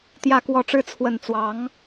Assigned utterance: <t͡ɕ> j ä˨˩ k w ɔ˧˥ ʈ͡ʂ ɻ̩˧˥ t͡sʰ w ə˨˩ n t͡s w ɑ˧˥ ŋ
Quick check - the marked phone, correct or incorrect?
incorrect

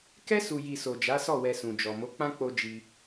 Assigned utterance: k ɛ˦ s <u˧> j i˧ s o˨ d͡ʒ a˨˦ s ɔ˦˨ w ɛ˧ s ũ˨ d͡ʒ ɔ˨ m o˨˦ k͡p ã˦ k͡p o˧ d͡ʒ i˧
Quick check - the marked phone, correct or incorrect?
correct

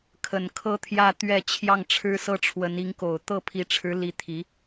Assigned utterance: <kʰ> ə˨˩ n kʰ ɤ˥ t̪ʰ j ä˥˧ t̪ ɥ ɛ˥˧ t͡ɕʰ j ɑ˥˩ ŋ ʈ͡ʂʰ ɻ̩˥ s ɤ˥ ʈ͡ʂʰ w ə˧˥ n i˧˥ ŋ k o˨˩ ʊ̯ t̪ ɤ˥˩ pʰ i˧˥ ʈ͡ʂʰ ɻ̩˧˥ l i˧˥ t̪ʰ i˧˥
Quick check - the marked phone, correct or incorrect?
correct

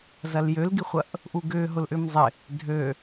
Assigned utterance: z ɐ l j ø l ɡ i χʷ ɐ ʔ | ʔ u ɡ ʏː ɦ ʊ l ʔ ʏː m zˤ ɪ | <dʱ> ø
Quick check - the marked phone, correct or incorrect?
correct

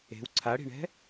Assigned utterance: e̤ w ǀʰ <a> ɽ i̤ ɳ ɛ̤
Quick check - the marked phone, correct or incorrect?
correct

